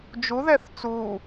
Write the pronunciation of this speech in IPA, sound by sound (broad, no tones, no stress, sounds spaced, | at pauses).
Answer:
d͡ʒ u ð ɛ θ t͡s u